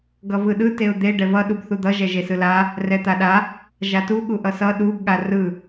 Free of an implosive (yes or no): no